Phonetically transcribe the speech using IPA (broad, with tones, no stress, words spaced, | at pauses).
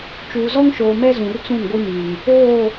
t͡ʃuː˨ zɔ˦ŋʃoː˨ mɛ˦zũ˨rt͡sũ˦˨n ɡʷi˦mi˨ŋ | oː˦˨